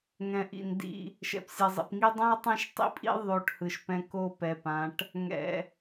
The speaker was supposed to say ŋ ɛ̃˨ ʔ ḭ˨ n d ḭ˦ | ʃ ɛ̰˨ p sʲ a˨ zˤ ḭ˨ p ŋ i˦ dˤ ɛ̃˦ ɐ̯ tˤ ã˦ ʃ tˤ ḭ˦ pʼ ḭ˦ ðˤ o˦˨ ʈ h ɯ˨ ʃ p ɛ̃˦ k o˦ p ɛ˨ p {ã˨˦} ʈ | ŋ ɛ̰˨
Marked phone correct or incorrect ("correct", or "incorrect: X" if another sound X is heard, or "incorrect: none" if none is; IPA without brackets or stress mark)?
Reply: correct